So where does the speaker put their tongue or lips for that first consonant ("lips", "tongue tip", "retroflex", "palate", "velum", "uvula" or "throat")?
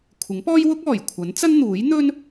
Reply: velum